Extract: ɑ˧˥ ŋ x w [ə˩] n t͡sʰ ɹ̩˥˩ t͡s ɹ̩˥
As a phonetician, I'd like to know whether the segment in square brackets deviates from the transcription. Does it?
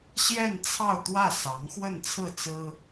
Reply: yes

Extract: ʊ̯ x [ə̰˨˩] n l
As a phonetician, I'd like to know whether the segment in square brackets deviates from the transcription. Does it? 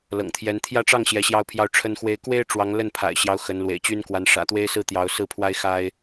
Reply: yes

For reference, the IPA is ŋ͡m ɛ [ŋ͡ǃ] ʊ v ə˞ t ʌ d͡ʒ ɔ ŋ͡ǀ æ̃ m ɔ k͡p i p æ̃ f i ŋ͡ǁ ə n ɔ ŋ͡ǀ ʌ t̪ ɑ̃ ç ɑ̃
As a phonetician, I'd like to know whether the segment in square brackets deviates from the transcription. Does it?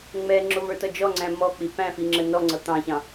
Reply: yes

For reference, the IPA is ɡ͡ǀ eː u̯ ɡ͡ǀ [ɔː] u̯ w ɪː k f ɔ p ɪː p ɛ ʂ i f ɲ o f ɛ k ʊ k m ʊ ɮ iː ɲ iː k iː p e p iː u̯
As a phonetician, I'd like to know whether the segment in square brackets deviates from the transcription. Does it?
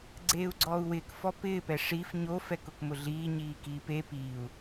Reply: no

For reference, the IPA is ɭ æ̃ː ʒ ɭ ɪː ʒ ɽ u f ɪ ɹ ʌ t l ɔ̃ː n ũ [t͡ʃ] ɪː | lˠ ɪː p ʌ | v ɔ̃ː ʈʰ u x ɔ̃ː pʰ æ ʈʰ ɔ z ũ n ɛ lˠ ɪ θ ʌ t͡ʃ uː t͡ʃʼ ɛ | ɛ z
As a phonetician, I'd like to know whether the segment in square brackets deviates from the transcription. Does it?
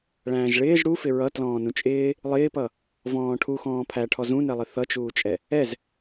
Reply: yes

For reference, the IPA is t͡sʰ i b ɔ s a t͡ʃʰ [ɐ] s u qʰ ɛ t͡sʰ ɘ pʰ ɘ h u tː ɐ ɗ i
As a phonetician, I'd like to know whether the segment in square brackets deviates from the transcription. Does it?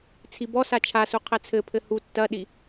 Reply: yes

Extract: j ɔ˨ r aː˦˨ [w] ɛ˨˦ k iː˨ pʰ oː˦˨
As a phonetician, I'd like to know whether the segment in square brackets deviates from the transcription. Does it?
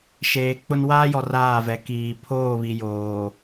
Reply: yes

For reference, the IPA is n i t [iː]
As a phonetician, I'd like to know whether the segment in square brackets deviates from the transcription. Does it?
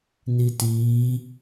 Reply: no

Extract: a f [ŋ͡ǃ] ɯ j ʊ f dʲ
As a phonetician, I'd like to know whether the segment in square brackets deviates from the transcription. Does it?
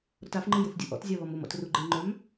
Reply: no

